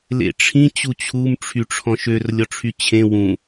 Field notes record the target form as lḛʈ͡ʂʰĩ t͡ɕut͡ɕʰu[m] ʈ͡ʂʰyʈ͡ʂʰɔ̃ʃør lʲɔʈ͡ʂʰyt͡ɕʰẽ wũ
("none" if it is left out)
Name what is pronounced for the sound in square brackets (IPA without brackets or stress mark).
m